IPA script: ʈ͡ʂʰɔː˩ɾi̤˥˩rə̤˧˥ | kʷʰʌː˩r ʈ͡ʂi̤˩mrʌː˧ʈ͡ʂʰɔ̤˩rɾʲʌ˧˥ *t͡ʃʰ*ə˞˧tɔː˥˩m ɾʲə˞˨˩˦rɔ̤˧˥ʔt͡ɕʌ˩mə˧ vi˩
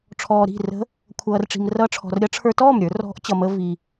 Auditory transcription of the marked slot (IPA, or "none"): ʈ͡ʂʰ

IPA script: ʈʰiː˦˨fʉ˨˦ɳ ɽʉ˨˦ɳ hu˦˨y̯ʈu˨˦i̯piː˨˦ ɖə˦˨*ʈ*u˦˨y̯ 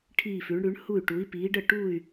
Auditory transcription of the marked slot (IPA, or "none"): ʈ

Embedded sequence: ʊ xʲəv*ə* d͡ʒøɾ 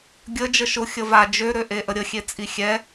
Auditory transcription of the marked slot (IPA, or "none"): a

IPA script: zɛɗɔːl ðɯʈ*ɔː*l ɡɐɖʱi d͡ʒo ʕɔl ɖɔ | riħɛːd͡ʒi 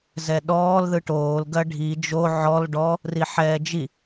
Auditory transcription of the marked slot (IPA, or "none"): oː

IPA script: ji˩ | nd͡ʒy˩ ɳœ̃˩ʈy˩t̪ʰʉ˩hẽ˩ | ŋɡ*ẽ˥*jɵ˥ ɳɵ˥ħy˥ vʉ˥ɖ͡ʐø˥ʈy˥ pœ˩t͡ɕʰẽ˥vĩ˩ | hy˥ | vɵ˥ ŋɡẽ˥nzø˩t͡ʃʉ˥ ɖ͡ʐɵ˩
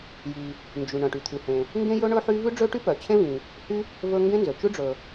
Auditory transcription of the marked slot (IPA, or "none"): ẽ˥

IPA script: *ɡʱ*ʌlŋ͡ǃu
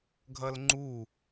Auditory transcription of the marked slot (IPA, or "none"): ɡʱ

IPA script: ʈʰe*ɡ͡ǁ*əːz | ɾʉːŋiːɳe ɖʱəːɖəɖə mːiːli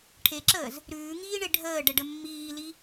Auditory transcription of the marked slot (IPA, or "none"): ǁ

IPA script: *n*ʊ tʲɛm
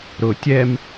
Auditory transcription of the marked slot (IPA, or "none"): ɾ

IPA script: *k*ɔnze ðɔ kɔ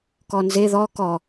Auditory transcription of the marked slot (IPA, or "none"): k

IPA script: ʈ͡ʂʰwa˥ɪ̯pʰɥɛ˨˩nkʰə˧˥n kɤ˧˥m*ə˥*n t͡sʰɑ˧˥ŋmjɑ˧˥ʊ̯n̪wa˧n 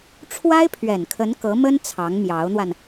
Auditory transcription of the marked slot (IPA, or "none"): ə˥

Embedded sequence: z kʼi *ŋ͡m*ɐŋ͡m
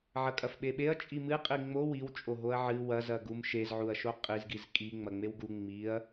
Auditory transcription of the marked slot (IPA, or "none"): ŋ͡m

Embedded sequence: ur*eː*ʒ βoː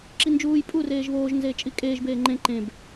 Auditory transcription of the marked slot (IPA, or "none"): eː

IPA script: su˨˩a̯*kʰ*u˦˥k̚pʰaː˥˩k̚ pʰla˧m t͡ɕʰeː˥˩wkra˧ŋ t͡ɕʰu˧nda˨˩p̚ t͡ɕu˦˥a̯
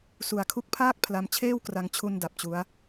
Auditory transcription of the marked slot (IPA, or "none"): kʰ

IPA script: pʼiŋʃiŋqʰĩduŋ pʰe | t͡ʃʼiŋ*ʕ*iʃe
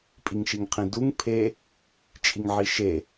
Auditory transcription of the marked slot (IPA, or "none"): ʕ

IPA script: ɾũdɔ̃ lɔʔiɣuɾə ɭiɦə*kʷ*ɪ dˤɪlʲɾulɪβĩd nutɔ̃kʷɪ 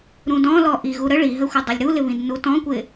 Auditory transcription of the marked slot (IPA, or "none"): xʷ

